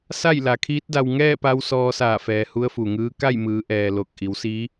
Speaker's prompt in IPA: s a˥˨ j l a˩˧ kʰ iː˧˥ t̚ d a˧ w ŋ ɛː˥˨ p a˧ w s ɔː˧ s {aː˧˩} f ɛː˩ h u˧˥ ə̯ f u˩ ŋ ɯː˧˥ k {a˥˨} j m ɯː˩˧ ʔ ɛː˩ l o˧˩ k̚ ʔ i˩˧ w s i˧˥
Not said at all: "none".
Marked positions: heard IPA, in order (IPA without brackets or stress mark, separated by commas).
aː˧˩, a˥˨